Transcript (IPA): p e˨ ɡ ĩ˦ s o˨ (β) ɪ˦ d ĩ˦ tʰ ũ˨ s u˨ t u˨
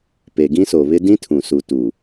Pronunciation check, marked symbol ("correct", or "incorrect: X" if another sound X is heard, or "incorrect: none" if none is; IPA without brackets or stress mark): correct